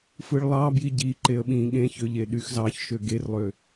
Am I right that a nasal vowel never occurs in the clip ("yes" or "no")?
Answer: no